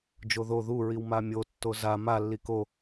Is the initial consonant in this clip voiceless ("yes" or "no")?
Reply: no